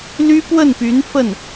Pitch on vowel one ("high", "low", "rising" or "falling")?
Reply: high